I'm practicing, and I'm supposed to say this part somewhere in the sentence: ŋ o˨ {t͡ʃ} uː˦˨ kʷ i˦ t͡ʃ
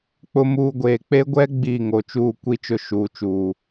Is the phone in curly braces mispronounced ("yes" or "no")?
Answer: no